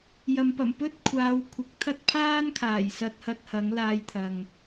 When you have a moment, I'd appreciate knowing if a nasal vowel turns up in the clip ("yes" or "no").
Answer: no